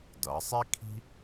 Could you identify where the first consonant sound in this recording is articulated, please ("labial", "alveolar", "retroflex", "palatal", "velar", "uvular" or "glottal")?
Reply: alveolar